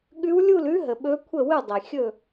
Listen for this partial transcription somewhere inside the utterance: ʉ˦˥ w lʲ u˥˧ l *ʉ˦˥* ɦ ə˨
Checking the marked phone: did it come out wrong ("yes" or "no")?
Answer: no